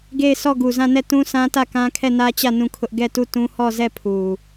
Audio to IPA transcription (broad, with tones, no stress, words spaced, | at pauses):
ɡe˦˨ɪ̯sɔ˦˨ ɡu˨zã˦˨nɛ˦˨ tũ˦sã˦tä˦˨kã˦ kʰɛ˦˨nä˦t͡ɕä˦˨ nũ˦˨kʰʊ˦ʔ ɡɛ˦˨tu˦˨tũ˦ hɔ˦˨zɛ˦˨pʰu˨